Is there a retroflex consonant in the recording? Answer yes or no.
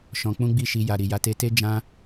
no